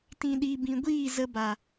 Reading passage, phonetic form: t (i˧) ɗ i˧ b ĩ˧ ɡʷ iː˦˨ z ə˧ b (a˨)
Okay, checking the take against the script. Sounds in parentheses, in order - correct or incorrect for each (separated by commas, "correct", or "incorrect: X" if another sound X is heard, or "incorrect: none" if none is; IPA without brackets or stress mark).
incorrect: ĩ˧, correct